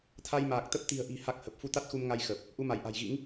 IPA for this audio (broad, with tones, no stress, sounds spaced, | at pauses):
t̪ʰ a˧ j m aː˨˩ k̚ t̪ ə˦˥ p̚ t̪ i̤˨˩ ə̯ ʔ i̤˨˩ h a˦˥ k̚ h ə˨˩ p̚ f u˧ t̪ a˦˥ t̚ x u˧ m ŋ a˧ j x ə˨˩ p̚ | ʔ u˧ m a˧˩ j ʔ a̤˨˩ j ɣ ḭ˧˥ ŋ